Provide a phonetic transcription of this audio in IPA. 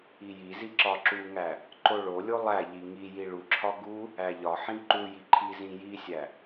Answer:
i j i z i ǁ ɒ ǁ u ŋ æ | ǃ o ɭ o lʲ o lˠ æ ʎ i ŋ i j i ɭ u ǁʰ ɒ ɡ u | æ ʎ ɒ ħ ĩ ǃ u j i ǃʰ i z ĩ j i sʲ æ

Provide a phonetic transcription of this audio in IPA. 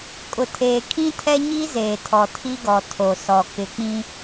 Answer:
kʼ ʊ˨ tʰ eː˨ kʰ ĩ˦ tʰ ɛ˦ ɲ i˦ z eː˨ tʰ ɔ˨ tʰ i˦ ɡ ɔ˨ tʰ o˨ s ɔ˨ k ɪ˨ k͡p ĩ˦

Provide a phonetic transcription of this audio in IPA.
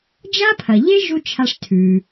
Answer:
d͡ʒ a˥ pʰ ɐ˩ ʎ e˥ ʒ u˥ t͡ʃʰ a˧ ʂ tʰ ʉ˩

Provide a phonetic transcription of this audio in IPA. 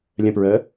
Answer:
lʲ ə̃ p ɹ əː

